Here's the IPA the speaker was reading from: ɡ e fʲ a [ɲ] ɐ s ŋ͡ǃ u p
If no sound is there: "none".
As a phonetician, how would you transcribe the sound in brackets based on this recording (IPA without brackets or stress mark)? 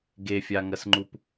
ŋ